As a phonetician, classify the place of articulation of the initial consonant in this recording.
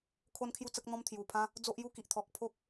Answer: velar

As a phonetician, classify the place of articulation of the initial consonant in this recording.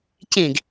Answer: palatal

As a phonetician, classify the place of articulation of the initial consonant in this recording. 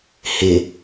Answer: glottal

